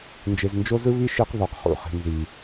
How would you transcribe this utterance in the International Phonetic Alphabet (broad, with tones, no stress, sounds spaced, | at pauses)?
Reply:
n d͡ʒ e˨ z n d͡ʒ o˦ z ɯ˦ β i˦ ʃ i˦ q ð ɔ˨ q χ ṵ˦˨ χ i̤˨ n z i˨